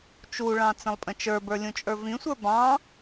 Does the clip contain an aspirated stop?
no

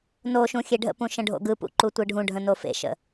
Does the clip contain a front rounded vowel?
no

